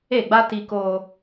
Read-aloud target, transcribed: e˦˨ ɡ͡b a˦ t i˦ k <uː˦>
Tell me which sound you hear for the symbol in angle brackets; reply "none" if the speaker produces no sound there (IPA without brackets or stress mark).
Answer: oː˦